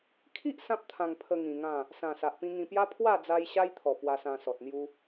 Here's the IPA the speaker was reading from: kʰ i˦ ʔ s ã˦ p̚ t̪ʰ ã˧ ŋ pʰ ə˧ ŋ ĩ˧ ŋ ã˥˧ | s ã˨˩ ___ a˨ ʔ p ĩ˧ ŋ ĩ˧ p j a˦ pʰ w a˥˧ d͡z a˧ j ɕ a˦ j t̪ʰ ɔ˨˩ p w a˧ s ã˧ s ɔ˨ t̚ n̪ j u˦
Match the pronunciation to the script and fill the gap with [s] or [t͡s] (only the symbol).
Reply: s